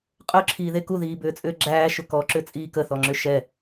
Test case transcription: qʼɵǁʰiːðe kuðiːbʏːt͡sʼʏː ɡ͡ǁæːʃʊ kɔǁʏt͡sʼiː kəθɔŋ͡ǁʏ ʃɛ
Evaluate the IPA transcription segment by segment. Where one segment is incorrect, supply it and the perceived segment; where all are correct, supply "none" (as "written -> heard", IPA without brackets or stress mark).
none